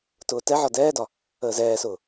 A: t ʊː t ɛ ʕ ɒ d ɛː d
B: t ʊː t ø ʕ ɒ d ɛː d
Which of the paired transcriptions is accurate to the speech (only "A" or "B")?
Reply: A